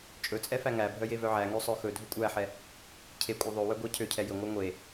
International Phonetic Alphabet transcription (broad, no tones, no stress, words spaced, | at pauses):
t͡ʃʼɵt͡sʼɛ fæŋæbʱœ jevœʕæŋø sˤœxɵdʱɵ kʷʼæħɛ | cʰekʷʼœ ðˤøwœ ɡʷɛ cʰøcʰɛ jɵŋʷæ ŋʷe